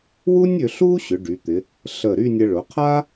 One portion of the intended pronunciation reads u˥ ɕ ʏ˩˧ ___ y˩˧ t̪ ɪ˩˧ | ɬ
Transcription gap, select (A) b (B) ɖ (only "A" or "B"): B